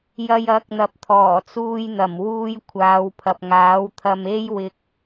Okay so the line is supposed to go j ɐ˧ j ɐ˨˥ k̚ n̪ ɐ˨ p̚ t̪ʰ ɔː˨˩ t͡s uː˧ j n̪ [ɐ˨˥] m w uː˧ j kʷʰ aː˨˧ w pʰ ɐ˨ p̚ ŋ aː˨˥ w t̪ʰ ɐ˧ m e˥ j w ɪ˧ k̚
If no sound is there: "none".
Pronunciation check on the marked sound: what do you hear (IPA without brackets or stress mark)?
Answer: ɐ˨˩